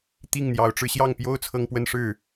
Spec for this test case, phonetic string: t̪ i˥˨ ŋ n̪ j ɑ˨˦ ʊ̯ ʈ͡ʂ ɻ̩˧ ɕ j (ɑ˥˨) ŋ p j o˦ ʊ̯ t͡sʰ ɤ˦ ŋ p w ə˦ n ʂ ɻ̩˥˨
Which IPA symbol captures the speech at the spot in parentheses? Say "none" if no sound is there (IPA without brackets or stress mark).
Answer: ɑ˥˨